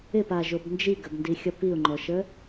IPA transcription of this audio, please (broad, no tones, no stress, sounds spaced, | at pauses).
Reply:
ɪ p a ʒ o b n d͡ʒ i ɡ ə b n d i xʲ ʌ p i ʊ̯ ŋ͡ǃ ɔ ʃ ə